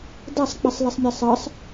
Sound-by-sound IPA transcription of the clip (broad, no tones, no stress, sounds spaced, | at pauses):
d a sˤ k͡p i sˤ l i sˤ mʲ ɛ sˤ ɜ sˤ